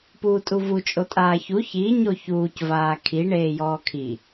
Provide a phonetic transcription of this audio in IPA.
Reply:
p uː tʼ u v u t͡ʃʼ o tʼ aː ç u ç i ɲ o ç uː c v aː kʰ i ɳ eː j ɔː kʰ i

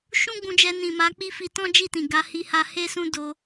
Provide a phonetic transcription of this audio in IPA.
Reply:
ʃ ũ˦ ɡ͡b ũ˧ d͡ʒ ɛ˧ n ĩ˨ m a˨˦ k͡p i˦ f i˧ t ɔ̃˦ d͡ʒ i˦˨ t ĩ˨ ɡ a˧ h i˧ h a˧ h e˦ s ũ˦ d o˧

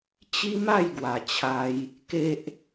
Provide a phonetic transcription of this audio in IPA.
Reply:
t͡ɕ i˦ m a˥˧ j ɡ w a˨˩ t͡ɕʰ a˧ j | k e˦ ʔ

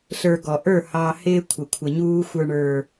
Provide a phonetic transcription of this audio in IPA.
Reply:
ɬ ə˞˨ ɡ ɔ˨ ʔ ə˞˦˨ h ɑ˨ h ɪː˦ kʷʰ ə˨ kʷʰ ə˨ ɲ uː˦ xʷ ə˞˨ ɳ ə˞˨

